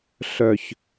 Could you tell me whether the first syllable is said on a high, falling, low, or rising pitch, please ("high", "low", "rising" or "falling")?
low